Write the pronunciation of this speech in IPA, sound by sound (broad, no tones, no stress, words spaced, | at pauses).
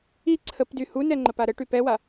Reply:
i ǀʰəpdy hunɛ ŋ͡ǃəpaɾəʈy pɛwa